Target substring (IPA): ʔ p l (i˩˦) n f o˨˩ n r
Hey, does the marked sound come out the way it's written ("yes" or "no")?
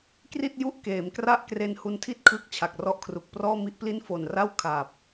no